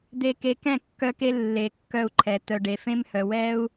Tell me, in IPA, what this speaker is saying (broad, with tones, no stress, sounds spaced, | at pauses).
d̪ e˨ k e˨ k ɛ̃˦˨ kː œ˧ k e˧ lː e˨ kː œ˧ u̯ ǃʰ ɛ˨ t̪ œ˨ ɖ e˨ f ẽ˦ m h œ˨ w ɛ˦ u̯